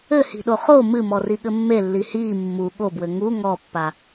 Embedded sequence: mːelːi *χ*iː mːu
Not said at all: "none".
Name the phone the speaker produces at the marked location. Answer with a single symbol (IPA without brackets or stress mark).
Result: h